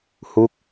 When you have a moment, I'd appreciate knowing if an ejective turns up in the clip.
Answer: no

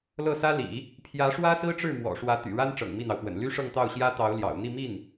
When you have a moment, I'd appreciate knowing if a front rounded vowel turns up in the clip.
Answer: yes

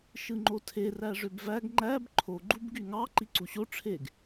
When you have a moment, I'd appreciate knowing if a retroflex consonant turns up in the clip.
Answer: yes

